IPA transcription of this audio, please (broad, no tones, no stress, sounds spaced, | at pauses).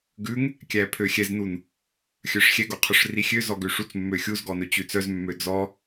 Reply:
ɡ ʉ ŋ | kʲ æ pʰ ø xʲ ɛ z n u n | xʲ œ ʂ xʲ ɛ ɡ o qʰ ɵ ʂ r i xʲ ø z ɔ ɡ ø ʂ u t͡s mː ø xʲ u z ɡ ɔ n ɵ t͡ɕ ʉ t͡s œ z mː ø d͡z ɔ